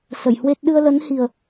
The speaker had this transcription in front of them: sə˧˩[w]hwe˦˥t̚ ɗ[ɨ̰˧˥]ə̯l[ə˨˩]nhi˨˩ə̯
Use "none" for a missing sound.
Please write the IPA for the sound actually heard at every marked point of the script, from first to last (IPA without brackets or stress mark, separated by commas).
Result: j, ɨ˧, ə˨˦